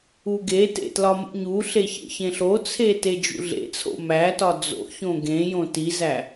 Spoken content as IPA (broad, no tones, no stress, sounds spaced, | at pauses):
u ɡ e t ḛ t l ɒ m ṵ ɲ u ɬ e ç ḛ ç ẽ ɬ o t͡sʰ e t e d͡ʒ ṵ ɮ ḛ t͡sʰ o̰ m æ t ɒ d͡z o̰ ç õ ɡ ẽ j õ t i z æ